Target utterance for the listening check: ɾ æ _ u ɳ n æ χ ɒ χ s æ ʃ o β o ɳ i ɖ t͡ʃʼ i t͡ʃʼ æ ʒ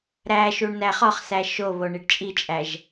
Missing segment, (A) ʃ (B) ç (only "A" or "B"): A